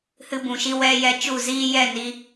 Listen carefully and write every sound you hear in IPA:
hɨ˧bũ˨ʃi˧ wɛ˧jɛ˧ t͡ʃu˦˨ziː˦jɛ˦˨ni˧

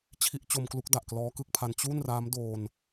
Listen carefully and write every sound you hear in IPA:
t͡ɕʰi˦˥ʔt͡ɕo˧mklu˦˥k̚da˨˩ʔ klɔː˦˥kɯ˦˥k̚pʰa˧n t͡ɕu˥˩nraː˦˥m doː˧n

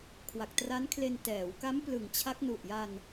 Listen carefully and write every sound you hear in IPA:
kʰwa˨˩k̚tra˦˥nkʰle˧n tɛː˩˦w ka˦˥m plɯ˨˩ŋt͡ɕʰa˦˥k̚ nu˨˩ʔja˧n

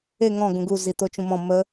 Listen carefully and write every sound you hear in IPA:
e ŋɔ̃ ɡũɡu zit̪ot͡ʃũmɔ̃ mə

